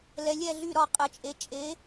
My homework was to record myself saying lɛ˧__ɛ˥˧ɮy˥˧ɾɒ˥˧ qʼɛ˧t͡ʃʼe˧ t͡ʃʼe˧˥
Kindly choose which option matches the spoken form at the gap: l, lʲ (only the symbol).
lʲ